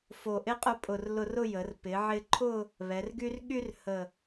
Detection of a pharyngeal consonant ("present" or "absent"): present